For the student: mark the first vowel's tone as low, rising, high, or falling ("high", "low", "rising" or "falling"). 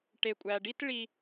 low